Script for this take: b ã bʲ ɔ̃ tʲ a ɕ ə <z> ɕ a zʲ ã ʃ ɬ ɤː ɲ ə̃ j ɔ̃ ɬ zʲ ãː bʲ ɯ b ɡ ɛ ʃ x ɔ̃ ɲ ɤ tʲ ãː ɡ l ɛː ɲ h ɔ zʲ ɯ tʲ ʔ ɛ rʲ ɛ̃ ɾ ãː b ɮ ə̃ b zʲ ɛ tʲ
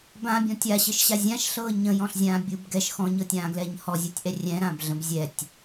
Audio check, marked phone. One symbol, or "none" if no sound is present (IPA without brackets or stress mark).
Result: ʃ